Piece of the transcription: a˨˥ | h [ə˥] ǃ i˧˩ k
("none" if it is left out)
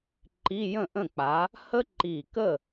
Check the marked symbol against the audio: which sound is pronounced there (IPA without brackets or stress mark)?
ə˥